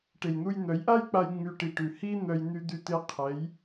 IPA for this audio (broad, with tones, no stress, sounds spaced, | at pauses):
ʈ e˨ j n̪ u˧ j n̪ œ˨˦ j ʔ a˦ j k͡p a˧ j ŋ͡m y˧ ʈ i˨ ʈ ʉ˨ h i˦ n̪ œ˧ j n̪ y˧ d̪ y˧ t̪ e˧ qʰ ɛ˨˦ j